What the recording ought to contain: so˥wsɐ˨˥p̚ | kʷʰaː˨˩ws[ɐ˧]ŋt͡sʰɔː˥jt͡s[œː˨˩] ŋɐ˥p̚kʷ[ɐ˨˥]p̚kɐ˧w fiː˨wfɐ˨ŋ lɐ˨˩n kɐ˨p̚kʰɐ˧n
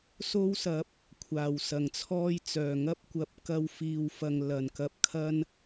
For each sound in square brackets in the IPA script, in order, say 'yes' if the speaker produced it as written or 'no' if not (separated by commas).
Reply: no, yes, yes